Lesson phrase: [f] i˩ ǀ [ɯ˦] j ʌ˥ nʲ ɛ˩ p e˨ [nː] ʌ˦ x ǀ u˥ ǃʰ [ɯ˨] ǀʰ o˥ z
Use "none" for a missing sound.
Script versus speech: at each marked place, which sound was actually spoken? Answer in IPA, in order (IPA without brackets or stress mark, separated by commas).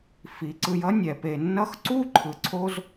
f, ɯ˨, nː, ɯ˨